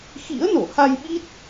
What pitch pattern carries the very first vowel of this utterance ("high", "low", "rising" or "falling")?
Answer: rising